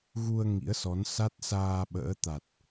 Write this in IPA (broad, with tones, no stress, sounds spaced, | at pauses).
ɣ u˧ ə̯ ŋ ḭ˧˥ ə̯ s ɔ˨˦ n s a˦˥ t̚ s aː˧ ɓ ə̰ː˧˥ t̪ a˨˩ t̚